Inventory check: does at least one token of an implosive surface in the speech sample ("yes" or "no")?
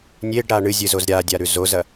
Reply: no